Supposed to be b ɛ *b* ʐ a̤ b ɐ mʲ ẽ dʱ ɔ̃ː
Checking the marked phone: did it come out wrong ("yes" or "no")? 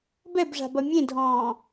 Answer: no